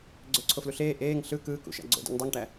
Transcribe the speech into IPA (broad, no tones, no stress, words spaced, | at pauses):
ɡ͡ǀøǀʰofluɬeː ʔeːŋ ɬɯ kɯːkṵʃæ̰ ɡ͡ǀo̰ dṵŋdˤuŋʈæ